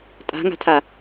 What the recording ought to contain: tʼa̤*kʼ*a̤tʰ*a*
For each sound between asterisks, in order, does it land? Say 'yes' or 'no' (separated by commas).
no, yes